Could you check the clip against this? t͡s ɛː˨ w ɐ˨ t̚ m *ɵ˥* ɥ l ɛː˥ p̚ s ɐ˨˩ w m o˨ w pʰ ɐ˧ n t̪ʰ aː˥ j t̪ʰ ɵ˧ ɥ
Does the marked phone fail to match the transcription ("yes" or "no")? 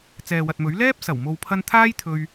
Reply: yes